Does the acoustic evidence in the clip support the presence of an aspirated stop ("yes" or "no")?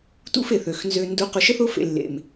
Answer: no